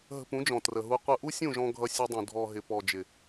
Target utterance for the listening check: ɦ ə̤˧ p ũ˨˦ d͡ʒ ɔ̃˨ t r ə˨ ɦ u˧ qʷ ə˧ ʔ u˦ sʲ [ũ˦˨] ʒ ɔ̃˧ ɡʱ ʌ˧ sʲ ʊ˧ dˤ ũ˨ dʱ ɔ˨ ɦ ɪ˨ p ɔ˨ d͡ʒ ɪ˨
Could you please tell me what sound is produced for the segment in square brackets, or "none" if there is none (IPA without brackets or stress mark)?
ũ˦˨